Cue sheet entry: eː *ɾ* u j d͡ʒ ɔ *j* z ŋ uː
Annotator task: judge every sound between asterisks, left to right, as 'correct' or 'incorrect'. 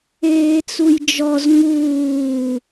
incorrect: t͡s, incorrect: none

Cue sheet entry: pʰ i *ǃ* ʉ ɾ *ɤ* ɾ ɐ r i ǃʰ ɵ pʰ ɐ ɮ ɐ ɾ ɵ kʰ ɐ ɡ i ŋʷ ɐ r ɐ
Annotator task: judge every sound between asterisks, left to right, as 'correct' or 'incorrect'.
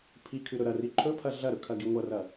incorrect: kʰ, incorrect: ɵ

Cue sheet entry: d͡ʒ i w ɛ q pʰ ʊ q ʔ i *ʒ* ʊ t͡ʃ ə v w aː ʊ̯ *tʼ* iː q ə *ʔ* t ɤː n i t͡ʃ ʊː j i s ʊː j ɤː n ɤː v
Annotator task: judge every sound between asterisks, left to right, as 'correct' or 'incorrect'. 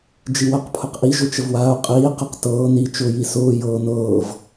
correct, incorrect: qʼ, incorrect: q

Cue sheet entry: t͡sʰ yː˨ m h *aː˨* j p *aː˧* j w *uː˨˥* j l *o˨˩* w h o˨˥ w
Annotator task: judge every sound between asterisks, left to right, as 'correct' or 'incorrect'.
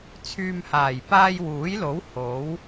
incorrect: aː˨˩, correct, correct, incorrect: o˨˥

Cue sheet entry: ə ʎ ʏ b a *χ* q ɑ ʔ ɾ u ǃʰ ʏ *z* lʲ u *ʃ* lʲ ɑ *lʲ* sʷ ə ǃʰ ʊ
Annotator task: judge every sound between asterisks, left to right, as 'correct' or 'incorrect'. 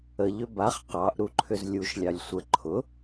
correct, correct, correct, correct

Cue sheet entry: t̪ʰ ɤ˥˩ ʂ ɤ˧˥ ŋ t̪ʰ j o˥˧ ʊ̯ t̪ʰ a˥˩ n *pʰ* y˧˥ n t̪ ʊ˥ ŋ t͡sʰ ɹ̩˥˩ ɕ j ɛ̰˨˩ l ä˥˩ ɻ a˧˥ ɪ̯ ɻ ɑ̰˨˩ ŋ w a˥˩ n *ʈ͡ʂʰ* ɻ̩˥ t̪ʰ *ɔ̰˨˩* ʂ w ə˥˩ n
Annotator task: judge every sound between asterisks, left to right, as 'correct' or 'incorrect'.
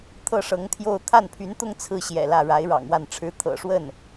correct, correct, incorrect: ɤ̰˨˩

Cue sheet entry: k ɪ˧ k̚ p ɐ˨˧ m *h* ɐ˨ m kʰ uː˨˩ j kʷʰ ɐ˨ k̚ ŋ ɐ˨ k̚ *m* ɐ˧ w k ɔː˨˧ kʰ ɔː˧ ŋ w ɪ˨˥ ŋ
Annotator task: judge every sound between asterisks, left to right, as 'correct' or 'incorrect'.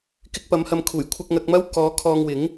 correct, correct

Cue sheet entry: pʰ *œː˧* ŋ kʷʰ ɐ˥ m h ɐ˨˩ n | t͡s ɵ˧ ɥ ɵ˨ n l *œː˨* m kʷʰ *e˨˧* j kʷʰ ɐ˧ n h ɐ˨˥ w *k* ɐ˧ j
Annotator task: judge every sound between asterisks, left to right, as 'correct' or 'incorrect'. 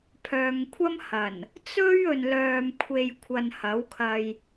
correct, correct, incorrect: e˨, incorrect: kʰ

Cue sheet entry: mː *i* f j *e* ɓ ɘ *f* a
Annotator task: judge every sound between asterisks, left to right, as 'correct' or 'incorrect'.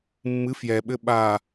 incorrect: ɨ, incorrect: ɛ, incorrect: ɓ

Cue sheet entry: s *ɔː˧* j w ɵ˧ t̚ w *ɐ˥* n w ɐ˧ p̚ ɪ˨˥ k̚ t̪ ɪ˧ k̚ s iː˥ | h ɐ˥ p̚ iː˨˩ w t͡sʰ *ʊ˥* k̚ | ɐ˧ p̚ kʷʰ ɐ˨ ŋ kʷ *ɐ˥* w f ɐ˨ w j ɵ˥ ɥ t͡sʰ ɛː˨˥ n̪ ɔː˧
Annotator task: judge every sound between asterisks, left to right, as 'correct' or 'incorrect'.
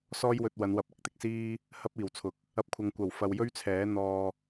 incorrect: ɔː˥, incorrect: ɐ˨˧, incorrect: ʊ˨, incorrect: ɐ˨˩

